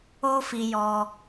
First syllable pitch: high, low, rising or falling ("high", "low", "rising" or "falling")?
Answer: high